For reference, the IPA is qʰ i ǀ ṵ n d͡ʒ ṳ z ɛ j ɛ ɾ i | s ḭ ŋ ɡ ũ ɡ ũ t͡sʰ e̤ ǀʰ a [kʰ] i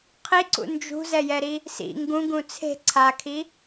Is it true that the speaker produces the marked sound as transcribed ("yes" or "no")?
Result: yes